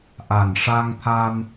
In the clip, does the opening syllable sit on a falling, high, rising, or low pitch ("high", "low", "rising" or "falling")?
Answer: low